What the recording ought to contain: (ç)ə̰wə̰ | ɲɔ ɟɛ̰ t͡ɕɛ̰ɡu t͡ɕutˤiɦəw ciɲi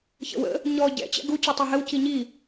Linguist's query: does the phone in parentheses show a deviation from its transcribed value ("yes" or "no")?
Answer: no